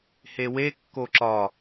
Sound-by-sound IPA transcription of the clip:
hewe kːoǁɒ

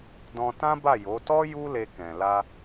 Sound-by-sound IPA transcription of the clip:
dɔ̃˧ tã˦ba˦˨jo˨˦ tɔ˦ ju˦le˧ kɛ̃˨ la˧

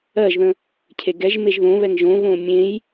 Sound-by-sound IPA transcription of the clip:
ɜʒðə̃ | cʰeɡɛʒmeʒ ðõβɛŋ ʒõβõ mʲẽj

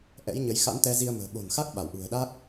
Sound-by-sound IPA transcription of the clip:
ʔɛ̰˧˥jɲə˨˦j xa̰˧˥nt̪ɛ˧zi˧ə̯mə̤ː˨˩ ɓo̤˨˩nxa˦˥k̚ ɓa˧˩wʔṳ˨˩ə̯ɗa˦˥k̚

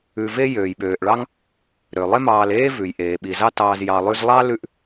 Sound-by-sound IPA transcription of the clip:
ʉ˧ve˦ jøː˨jɓøː˨ʔ ɭɑ˦ŋ | ɾø˨ lˠe˦mɑː˧leː˦ vʉ˨j ʔeː˨ɓi˨ zɑ˦tɑː˧z jɑ˨lˠʉ˧zlˠɑ˦ lʉ˦ʔ

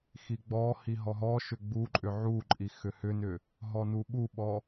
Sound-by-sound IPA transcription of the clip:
xiɡ͡bɔhi ɦɔɦɔʃʏ ɡ͡buǃʼʏ ʕuǃʼi xʏhʏnʏ | ɦɔnuɓuɓɔ

